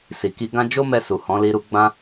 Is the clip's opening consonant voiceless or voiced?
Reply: voiceless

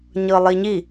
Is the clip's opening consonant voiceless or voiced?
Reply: voiced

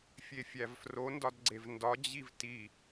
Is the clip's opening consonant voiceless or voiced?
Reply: voiceless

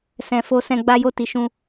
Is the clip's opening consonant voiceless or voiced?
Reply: voiceless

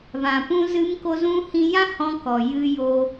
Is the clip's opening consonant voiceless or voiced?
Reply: voiced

